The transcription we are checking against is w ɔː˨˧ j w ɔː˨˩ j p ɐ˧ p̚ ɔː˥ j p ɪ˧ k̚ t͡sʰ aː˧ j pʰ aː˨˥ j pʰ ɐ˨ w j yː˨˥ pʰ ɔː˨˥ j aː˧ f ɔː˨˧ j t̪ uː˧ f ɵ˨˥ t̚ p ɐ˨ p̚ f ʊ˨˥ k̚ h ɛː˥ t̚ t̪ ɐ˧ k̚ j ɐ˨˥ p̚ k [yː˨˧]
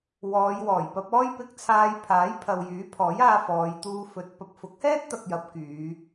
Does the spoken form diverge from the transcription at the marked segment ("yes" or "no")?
no